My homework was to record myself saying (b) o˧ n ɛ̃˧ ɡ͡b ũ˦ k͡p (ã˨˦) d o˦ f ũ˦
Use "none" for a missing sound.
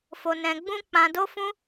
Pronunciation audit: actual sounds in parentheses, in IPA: f, ã˧

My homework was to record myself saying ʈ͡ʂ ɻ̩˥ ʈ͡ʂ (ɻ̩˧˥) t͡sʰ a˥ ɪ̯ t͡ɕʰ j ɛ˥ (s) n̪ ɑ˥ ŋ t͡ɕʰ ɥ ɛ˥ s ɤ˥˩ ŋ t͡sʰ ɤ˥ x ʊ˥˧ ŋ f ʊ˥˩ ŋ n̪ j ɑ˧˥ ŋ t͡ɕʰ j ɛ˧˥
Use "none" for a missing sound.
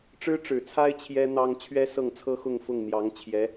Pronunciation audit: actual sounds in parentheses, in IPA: ɻ̩˨˩, none

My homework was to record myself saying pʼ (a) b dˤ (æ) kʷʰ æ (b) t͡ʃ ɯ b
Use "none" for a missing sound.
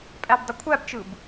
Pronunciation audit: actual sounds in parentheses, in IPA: æ, ə, b

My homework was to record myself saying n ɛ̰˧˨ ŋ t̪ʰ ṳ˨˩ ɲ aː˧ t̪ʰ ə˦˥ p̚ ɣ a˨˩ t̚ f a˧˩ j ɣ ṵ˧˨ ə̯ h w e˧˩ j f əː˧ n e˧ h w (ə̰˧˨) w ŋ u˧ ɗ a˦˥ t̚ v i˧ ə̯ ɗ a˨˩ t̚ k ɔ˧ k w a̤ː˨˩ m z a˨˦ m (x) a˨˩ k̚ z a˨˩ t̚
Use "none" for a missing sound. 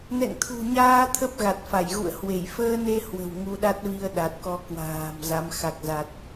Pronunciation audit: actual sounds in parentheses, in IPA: ə̤˨˩, x

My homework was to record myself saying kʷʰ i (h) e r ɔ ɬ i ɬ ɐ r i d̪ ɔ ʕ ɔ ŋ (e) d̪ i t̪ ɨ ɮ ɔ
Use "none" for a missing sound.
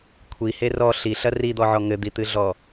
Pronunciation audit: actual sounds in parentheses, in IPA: h, ɘ

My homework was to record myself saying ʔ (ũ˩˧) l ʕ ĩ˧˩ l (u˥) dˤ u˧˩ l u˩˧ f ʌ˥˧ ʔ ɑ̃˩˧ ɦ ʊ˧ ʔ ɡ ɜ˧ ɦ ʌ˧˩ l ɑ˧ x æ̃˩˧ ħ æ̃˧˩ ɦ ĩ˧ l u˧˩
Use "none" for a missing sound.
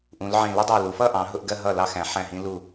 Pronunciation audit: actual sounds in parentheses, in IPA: ũ˩˧, u˥

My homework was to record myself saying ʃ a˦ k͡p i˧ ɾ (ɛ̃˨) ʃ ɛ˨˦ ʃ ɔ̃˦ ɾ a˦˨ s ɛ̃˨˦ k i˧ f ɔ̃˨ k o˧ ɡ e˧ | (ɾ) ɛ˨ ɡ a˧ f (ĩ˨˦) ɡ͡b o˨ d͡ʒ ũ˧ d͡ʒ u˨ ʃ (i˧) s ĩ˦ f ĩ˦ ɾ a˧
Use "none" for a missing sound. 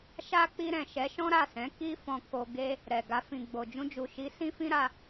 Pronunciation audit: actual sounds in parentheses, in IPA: ɛ̃˨, ɾ, ĩ˨, i˨˦

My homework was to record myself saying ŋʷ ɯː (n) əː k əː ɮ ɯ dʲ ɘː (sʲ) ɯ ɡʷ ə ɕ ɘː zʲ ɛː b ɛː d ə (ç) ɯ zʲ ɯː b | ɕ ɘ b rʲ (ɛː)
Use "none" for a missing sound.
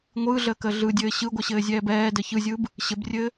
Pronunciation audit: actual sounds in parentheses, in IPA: ɮ, ɕ, ç, ɘː

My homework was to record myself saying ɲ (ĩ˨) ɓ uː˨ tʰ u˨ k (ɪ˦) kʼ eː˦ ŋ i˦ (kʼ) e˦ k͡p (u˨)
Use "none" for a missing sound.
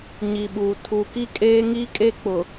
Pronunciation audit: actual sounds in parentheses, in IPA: i˨, i˦, kʼ, ʊ˨

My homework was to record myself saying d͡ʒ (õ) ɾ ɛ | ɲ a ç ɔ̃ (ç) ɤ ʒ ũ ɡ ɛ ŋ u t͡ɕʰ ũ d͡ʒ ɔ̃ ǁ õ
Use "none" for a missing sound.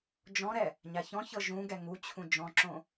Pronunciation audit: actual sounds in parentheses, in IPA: ɔ̃, ç

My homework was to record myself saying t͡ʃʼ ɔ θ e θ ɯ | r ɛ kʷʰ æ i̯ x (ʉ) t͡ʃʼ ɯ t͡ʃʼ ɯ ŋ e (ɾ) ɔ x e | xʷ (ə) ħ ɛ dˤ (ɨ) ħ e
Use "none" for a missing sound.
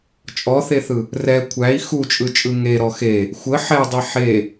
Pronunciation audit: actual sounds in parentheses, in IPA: u, ɾ, ə, i

